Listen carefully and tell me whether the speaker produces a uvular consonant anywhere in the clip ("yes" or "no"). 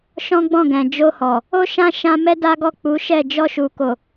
no